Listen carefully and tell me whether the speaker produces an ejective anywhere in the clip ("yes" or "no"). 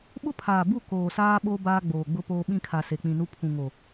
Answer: no